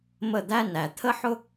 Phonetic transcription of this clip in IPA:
mə˦˨d̪æ˦næ˨ t̪ʰə˦ħʊ˦

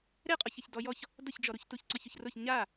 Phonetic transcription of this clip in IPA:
ɾeqʼɔçeç dɔjɔç | dʊçd͡ʒɔɾuç tuçǀɔçʊçrʊç ɲa

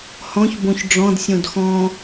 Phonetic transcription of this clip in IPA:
hɔ̃ç bõçɖ͡ʐɔ̃d sʲõdxɔ̃

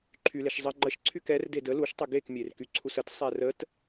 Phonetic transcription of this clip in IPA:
ǃʰyleʃ zˤə ŋ͡ǃəʃ ǀʰykɛr dedə luʃtˤə ɡekmʲerky ǀʰusət sˤɛrət

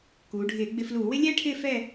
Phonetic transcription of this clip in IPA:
kuː˩˧ɖʱɪː˧˩˧ ɡ͡bɪ˧fluː˧˩˧wɪ˥ lʲɛː˥ʈʰɪː˥˧ fɛ˥˧

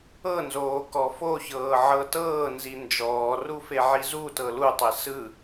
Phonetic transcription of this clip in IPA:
ɤnzoː kɔfoçɤː ʕɤtɤːnzi nd͡ʒɔːru feʕizutɤ lutˤe sɯ

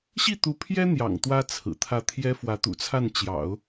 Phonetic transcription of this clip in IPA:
ɕi˥˩t̪u˧˥pʰjɛ˥ n̪jɑ̰˨˩ŋt̪wä˥ t͡sʰɹ̩˨˩t̪ʰä˥˩ t̪ʰjɛ˥fwä˧˥t̪ṵ˨˩t͡sʰa˥˩n t͡ɕjɑ̰˨˩˦ʊ̯

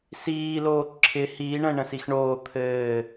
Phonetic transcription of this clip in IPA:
siːloː ǁʰɪ hiːɳə̃ː ɳə̃sixɳoː t̪ʰɘː

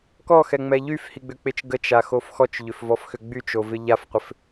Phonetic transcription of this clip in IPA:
kɔxɛŋ͡mɛ ʎyfhiɡ͡bʏk͡pɪt͡ʃ ɡət͡ʃaxof xɔt͡ʃʎʏfvɔfxʏ ɡ͡byt͡ʃovɪ ʎafqʷɪf

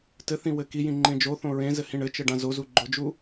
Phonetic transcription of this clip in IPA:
tɘθĩ wɘkijĩ ŋ͡ǃẽd͡ʒoθõ ɹẽzɘ hĩɳɘt͡ʃɘ ɖãzozu ɡ͡ǃʊd͡ʒu

